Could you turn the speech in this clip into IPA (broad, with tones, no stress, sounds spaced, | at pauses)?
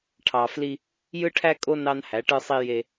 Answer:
ʈʰ ɑ˨ f l i˦ | j ɯ˦ ʈʰ æ˦ kʼ o˦ n ɑ˦ n h æ˨˦ ʈ ɯ˦ sˤ i˦ j e˦